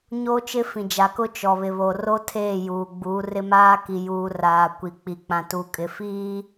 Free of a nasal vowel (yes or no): no